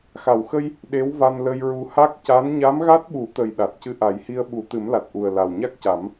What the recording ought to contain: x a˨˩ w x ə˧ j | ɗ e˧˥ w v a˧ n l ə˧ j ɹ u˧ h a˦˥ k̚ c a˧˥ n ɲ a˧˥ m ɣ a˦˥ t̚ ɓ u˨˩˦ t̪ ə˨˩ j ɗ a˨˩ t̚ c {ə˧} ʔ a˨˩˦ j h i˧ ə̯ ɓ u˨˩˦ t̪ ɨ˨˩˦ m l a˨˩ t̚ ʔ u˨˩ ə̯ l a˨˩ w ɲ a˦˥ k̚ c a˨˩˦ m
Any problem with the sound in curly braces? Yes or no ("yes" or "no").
yes